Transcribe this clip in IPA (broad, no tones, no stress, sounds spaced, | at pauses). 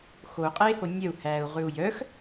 x o u̯ qʼ eː h o nʲ œ u̯ h æː u̯ ʁ ʉ u̯ j œ x